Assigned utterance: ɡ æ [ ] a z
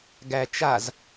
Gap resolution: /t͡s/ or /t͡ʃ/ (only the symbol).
t͡ʃ